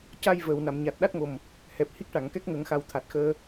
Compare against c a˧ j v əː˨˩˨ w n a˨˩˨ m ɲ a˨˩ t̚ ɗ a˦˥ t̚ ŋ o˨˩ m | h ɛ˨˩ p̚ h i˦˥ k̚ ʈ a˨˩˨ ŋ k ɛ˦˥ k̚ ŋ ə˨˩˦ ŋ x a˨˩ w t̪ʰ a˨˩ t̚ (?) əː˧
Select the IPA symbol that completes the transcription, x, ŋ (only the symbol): x